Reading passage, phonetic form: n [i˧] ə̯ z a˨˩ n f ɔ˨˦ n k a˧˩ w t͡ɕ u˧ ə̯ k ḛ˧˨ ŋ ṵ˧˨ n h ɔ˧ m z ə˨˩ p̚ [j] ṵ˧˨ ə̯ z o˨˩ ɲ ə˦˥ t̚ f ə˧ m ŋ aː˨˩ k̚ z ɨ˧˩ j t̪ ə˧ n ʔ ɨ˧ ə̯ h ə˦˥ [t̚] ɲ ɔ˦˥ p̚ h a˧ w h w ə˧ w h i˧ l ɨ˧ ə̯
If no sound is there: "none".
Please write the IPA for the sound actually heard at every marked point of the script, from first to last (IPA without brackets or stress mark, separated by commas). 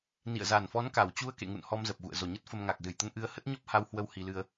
ḭ˧˨, ɣ, t̚